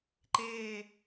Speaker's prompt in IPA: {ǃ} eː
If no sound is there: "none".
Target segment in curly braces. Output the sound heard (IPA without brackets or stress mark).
ǃ